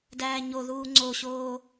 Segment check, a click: present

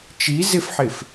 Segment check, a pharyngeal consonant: present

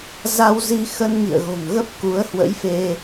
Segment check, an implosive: absent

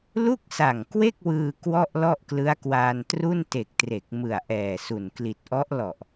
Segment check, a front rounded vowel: absent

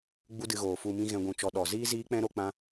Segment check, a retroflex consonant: absent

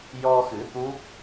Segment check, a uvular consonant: absent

